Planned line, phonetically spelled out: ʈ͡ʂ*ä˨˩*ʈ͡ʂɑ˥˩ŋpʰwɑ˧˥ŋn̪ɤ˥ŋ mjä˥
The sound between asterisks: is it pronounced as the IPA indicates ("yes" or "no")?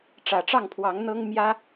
yes